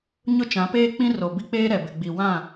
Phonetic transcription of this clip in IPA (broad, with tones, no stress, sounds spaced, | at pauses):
ɲ ʊ˦ t͡ʃ ã˨˦ p eː˦ k͡p ĩ˦ r o˨ b i˦ k͡p eː˦ ɾ ɛ˨ b ɪ˨ ɡ͡b i˨ w ã˦˨